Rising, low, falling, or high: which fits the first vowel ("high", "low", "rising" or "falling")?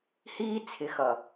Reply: high